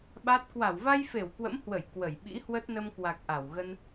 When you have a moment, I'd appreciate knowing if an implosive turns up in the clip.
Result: yes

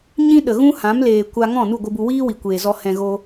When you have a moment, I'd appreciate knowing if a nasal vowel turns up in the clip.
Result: yes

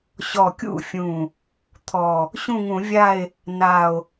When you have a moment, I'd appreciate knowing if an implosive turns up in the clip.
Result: no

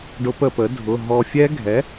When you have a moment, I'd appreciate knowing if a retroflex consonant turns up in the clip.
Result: yes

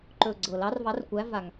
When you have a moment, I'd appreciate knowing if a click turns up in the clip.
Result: yes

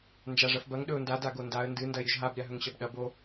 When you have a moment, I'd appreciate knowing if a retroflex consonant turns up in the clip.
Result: yes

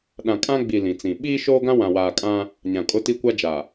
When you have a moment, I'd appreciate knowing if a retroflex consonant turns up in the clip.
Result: no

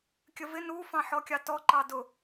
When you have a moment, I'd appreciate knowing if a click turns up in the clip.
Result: yes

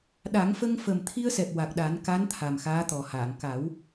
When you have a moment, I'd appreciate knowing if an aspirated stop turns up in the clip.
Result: yes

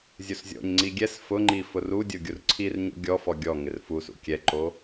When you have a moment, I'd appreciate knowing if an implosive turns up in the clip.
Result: no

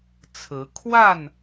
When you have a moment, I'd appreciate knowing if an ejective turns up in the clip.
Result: no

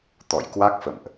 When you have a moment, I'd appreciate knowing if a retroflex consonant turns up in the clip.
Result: no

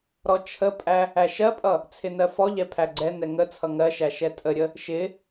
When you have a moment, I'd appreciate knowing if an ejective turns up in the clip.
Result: yes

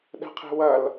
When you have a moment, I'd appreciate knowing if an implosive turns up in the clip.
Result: yes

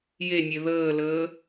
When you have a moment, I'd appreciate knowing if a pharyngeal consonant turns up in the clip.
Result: no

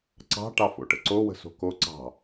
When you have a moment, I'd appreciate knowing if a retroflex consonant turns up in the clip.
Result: yes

